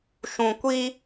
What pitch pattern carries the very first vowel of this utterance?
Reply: low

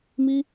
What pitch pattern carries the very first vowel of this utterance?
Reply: high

